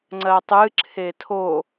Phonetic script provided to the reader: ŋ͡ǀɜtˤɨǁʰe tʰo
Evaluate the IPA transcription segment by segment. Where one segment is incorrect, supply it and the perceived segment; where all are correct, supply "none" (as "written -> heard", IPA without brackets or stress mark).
none